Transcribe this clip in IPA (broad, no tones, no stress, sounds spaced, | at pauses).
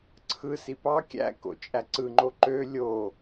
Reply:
ǀʰ ɯ s i p ɑ kʲ æ̰ k o̰ t͡ʃʼ æ ǀ ɯ ŋ͡ǃ o ǃ ø lʲ o